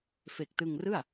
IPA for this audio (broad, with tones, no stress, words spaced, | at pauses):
fe˨˩k̚tɯ˧ŋrɯ˥˩a̯